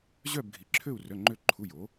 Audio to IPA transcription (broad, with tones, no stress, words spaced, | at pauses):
ʑœ˥˧bɡʱi˨˥ǁʰø˥˧u̯ rœ˧˥˧ŋ͡ǃø˥˧ ǃʰu˧˥˧jo˨˥